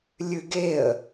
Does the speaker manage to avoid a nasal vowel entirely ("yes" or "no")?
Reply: yes